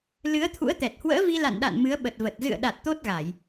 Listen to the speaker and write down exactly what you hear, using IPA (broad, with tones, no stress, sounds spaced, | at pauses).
l ɨ˨˦ ə̯ t̪ʰ ṵ˧˥ ə̯ t̪ ɛ˨˩ t̚ h w ə̰ː˧˥ v i˧ l a̰˧˨ n ɗ a̰˧˨ n m ɨ˨˦ ə̯ ɓ ə˨˩ t̚ v ə˨˩ t̚ z ɨ̰˧˨ ə̯ ɗ a˨˩ t̚ t̪ o˦˥ t̚ ɣ a˧˩˨ j